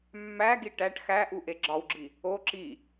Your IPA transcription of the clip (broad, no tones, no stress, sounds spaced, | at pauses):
mː æ ɡ i ʈ æ ʈ x æ ʔ u ʔ e ɡ͡ǁ ɒ w ɡ͡ǁ i | o ǁ i